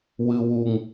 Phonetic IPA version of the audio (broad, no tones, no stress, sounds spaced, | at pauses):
w ɨ w u ŋ